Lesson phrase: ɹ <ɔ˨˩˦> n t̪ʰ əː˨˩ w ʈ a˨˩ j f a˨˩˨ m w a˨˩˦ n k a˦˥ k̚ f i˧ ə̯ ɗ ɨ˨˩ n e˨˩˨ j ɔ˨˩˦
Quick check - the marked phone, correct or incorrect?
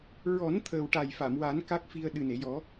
correct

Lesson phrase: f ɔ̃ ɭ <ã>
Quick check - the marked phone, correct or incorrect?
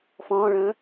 incorrect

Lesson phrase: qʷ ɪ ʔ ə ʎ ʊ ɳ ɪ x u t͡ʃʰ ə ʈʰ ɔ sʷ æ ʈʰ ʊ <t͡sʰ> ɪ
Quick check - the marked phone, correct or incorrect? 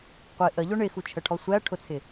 correct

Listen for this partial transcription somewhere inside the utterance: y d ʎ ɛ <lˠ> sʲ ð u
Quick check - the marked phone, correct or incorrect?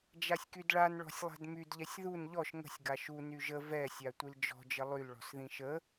incorrect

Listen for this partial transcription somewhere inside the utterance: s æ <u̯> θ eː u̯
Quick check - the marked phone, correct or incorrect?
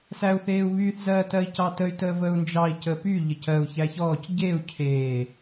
correct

